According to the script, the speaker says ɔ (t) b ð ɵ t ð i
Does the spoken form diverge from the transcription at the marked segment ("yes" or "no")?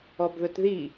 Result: yes